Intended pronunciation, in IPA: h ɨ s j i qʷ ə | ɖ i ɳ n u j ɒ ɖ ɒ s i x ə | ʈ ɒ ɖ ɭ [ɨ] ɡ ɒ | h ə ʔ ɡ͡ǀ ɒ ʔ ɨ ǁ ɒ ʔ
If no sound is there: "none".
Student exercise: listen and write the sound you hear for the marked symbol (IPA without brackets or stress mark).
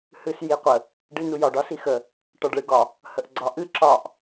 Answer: ɨ